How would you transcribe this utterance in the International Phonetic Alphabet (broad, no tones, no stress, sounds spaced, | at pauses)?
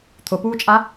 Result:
t̪ʰ ʊ p uː t͡ʃʼ a